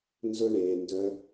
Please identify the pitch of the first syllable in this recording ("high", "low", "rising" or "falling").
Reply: high